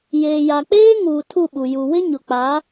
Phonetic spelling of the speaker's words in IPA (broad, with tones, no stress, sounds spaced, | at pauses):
j eː˨ j a˨ k͡p eː˦ ŋ uː˨ tʰ u˦˨ ɓ u˨ j u˨ w ɪ˦ ɲ ʊ˨ k͡p a˨˦